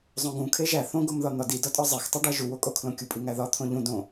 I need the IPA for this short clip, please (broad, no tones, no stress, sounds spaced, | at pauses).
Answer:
zˤ õ ɡ ũ kʰ e ʒ æ θ õ ɡ o m ð ɒ n̪ ɒ d i d ɒ tʼ ɒ zˤ e x tˤ u ɖ æ ʒ u w o kʼ o kʰ l õ kʲ u pʼ i ŋ æ ð ɒ t̪ʰ õ ʎ ũ d õ